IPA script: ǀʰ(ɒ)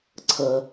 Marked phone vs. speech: incorrect: ʌ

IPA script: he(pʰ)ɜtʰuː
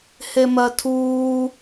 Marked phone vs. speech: incorrect: m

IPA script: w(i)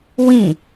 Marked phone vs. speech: incorrect: ĩ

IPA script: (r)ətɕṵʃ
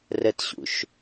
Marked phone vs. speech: correct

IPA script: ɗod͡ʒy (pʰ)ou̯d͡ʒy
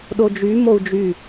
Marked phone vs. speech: incorrect: m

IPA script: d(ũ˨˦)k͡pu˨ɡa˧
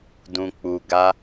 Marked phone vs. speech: incorrect: ũ˨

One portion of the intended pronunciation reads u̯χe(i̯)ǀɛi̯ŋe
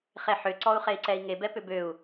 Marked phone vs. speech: correct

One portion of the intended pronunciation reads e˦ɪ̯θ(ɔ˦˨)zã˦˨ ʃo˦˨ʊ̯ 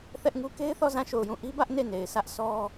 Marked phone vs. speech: correct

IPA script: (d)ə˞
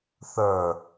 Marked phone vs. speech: incorrect: θ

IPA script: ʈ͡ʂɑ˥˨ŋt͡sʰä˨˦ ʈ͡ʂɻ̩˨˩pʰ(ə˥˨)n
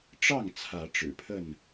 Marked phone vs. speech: correct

